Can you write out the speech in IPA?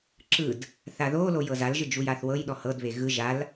ǁɯd | θaðolo jɤzalʒɯ d͡ʒujaθwɤjɗɔ hɤdβe ɣɯ ʒal

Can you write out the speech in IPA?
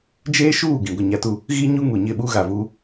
d͡ʒeː˦ʃuː˦˨ ɡĩ˨ɡʷɪ˦˨ɲa˦tu˦ | ɣiː˦ ɲu˦ŋu˨ ɲɪ˦˨ɓu˦ɣa˨vu˦

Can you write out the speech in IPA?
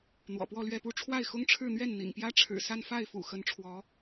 n̪wɔ̰˨˩pwɔ˥˧lɥɛ˥˧pu˥˧ ʈ͡ʂʰwa˥˩ɪ̯xʊ˥ŋʈ͡ʂʰɻ̩˥˧n̪ɥɛ˥˩n n̪ḭ˨˩ŋpjä˥ʈ͡ʂʰɻ̩˨˩ sa˥˧n fa˥˩ɪ̯fṵ˨˩ xə˧˥nʈ͡ʂʰwɔ˧˥

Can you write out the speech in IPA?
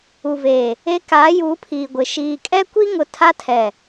u˨veː˨ | e˦ kaː˨˦juː˨˦pʰiː˨ɡʷɪ˨ ʃiː˨kʼɛ˦kʷi˦ŋʊ˨ tʰa˦tʰɛ˨

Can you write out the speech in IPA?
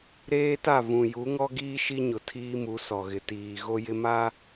ɾeː˦ta˦˨ vũ˨ ju˨˦ŋɔ˦ɡiː˦ ʃi˦ɲʊ˨ tʰiː˦mu˨˦sɔ˨ɣɪ˨ tiː˨ ɣo˦jɪ˦ma˦

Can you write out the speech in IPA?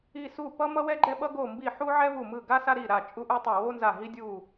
i˧˩ su˧˩ pʌ˦mʌ˦wɛ˦ ɡ͡ǃɛ˦ɓʌ˦ ɡo˧˩mbi˧˩ ħu˦ʕɛ˦vu˧˩ mɯ˧˩ɡa˦ sa˦ɾi˧˩ɾa˧˩ t͡ʃʼu˦ʔu˦tˤo˧˩ wo˦nza˧˩ɦi˦ dʲu˧˩

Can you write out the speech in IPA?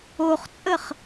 oχt͡sʼəχ

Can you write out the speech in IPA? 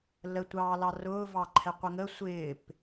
lətʷɑːlɑ rʊːvɑǃʰɛqʷə ŋə sʷɪːp

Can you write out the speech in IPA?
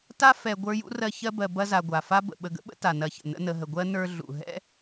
ta˥ fɛ˨ ɡʷə˞˦jṵ˥rɜ˦ çɜ˦bɜ˨ bɐ˦za˨ ɡʷa˩fa˥bə̰˨ ɓə˨ɡə̰˥ɓə̰˥ ta˩nɐ˨çə̰˩ nə̰˦nə˨ɦə˨ ɡʷɜ˥ nə˞˦ ɮṵ˩ ɦɛ̰˥

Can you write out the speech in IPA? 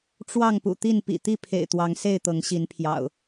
ʈ͡ʂwɑ˥˨ŋ pṵ˨˩t̪i˥˨n pḭ˨˩t̪i˥˨pʰḛ˨˩ɪ̯ t̪wɑ˨˦ŋse˥˨ɪ̯ t̪ɤ˨˦ŋɕi˨˦npʰjɑ̰˨˩ʊ̯

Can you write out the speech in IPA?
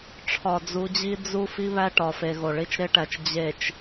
ʈ͡ʂʰɒ˨d͡zu˨˦d͡ʑi˦ d͡zu˦ fi˦βæ˦ʈɒ˨fe˨ ɣo˨ɭi˦t͡ʃɾe˦ʈæ˨t͡ʃ d͡ʑe˨t͡ʃ

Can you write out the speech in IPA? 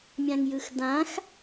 mʲãŋjɯxdãx

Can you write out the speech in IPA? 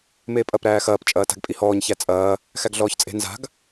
meːpʼɐp ɾæːxɐːp t͡ʃʼɐːta̤ɡpʼihɔːɲ çæt͡sʼɐː | xæɡɮɔːçt͡sʼe̤ nza̤ɡ

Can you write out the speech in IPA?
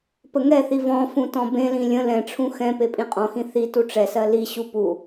pəŋɛθi vɔ̃ fũtɔ̃bẽlĩ lʲə̃ lɛ̃ʈ͡ʂʰũ xɛ̃ pepʼĩqʼɔ̃xĩ θi tuʈ͡ʂɛsɜ liɕu pu

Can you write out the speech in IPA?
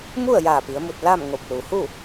mu˥˨ə̯jaː˧˩ pi˩˧ə̯mu˧˩t̚ la˥˨mŋo˧˩p̚ lu˩hu˥˨

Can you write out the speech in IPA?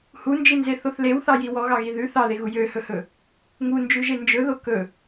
hund͡ʒinzeθoθ lewθɑji wɔɣɑɣi ðʉ θɑðeɣu jøhɵhɵ | ŋund͡ʒʉʒe nd͡ʒɵðo kɵ

